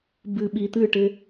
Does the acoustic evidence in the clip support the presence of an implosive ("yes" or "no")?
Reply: yes